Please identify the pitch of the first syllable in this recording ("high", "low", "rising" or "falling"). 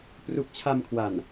low